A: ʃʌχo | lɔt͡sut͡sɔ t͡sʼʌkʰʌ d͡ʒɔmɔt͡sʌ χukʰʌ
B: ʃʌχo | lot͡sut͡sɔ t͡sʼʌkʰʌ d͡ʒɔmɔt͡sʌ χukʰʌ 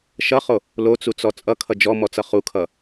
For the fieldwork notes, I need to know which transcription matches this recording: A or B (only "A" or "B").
B